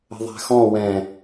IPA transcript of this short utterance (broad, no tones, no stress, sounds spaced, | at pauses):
ə̤ ðˤ æ̤ x ɔ̃ w ɛ̃